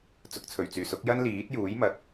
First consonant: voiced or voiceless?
voiceless